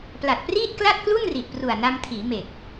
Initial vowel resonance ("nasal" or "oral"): oral